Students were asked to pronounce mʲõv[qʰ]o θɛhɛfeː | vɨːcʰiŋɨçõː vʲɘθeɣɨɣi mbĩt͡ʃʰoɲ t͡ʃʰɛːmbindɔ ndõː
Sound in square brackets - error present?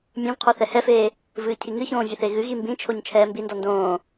no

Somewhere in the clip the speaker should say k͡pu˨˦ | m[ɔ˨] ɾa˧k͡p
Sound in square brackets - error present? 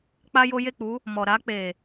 no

